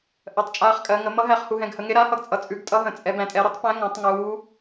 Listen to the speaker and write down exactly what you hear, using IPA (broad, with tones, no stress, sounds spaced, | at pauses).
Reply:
ʔ ɜ˩˧ tˤ t͡ʃʼ aː˨˥ χ kʼ ɜ˩˧ ŋ ə˩˧ m ʌ˨˥ ɦ æ˨˥ χ h u˩˧ ɦ ɛ̃˩˧ ɡ h ə˩˧ ŋ e˨˥ ɾ a˨˥ h ʌ˨˥ ɡ t͡sʼ ʌ˩˧ t͡sʼ ʉ˩˧ ɡ tʼ ʌ˨˥ ɦ ə̃˩˧ t͡sʼ ɛ˩˧ b æ̃˩˧ tʼ ɛ˩˧ ɾ ʌ˨˥ tˤ p æ̃˨˥ ŋ ã˩˧ tˤ ŋ uː˩˧